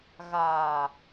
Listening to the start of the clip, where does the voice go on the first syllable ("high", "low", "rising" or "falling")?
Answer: low